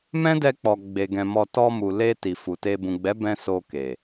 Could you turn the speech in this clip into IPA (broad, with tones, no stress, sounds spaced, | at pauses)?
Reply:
m ɛ̃˦ d ɛ˧ k͡p ɔ˨ ɡ͡b e˨ ɡ ɛ̃˨ m ɔ˧ t ɔ˧ m u˨ l e˧ t i˨ f u˨ t e˧ b ũ˨ ɡ͡b ɛ˨˦ b ɛ̃˧ s o˧ k e˨